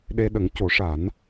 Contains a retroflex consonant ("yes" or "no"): yes